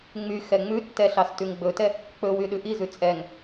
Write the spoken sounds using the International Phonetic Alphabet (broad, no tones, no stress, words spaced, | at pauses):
ŋ͡my xɛŋ͡mʉtːɛ ɬɑstʉŋɡ͡bɵtɛ | k͡pɵwy ɗʉʔizʉ t͡sʼɛŋ